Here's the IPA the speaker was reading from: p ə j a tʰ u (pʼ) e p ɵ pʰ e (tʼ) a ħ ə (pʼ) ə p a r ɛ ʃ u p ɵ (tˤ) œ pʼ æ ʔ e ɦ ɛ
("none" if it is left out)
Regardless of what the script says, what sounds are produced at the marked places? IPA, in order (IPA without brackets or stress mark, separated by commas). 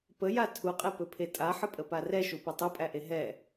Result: qʼ, tʼ, pʼ, tˤ